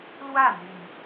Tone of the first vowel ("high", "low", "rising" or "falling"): falling